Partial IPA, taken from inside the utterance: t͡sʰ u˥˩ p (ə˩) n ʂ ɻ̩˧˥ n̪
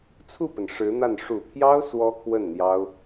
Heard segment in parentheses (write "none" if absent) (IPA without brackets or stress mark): ə˩